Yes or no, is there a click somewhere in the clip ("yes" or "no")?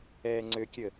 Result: yes